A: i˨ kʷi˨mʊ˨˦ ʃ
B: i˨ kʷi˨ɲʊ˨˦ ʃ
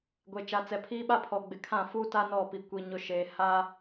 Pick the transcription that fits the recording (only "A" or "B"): B